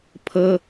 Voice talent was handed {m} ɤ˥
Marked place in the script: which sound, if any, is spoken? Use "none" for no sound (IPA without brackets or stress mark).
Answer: pʰ